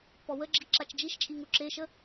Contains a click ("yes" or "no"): yes